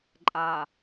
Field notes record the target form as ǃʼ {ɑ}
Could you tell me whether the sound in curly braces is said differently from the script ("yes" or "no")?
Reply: yes